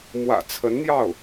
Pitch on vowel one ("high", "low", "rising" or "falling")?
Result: low